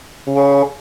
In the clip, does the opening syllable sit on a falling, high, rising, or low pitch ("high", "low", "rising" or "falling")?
high